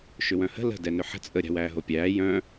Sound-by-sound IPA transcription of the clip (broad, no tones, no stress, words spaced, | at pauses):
ʃʏwœ̃hə̤ lə̤ dɛnʏħə̤ t͡sʼə ɾʲa̤wæːɦopʲæː jœ̃